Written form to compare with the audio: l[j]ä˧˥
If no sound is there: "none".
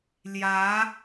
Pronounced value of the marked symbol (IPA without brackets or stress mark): j